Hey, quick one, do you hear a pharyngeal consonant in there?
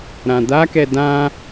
no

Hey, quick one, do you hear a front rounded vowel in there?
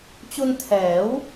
no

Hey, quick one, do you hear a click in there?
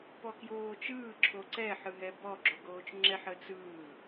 yes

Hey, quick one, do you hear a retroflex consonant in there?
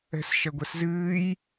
no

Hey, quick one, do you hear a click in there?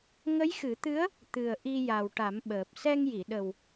no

